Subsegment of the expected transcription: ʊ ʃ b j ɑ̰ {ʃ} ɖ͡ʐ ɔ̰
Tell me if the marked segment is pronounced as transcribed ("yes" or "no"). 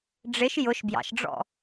yes